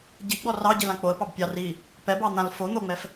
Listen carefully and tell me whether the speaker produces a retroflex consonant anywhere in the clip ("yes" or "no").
no